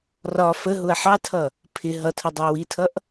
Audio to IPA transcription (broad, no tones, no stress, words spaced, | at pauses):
rɒ fəɦʊɐ̯ ħɑtʰʌ | pʰɪ ɦʌtʰʌ dˤɑwitʰʌʔ